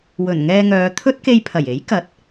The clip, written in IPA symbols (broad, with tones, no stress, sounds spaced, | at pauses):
w ɵ˨˩ n ŋ ɛː˧ ŋ œː˨˧ t̪ʰ ɵ˥ t̚ k e˧ j pʰ ɐ˨˩ j e˨˥ j k ɐ˨˥ t̚